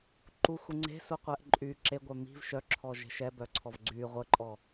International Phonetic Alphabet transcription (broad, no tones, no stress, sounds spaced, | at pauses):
ǃ u xʷ i ŋ͡ǀ e̤ s u qʷ ɛ ʔ ǃʼ y ǁ e ɡʷ œ m i̤ v ʃ œ ǁʰ ɔ ʒ e̤ ʃ ɛ b œ ǀʰ ɔ v ɡ͡ǀ y ʁʷ ə ǃʼ ɔ